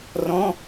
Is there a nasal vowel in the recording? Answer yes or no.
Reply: yes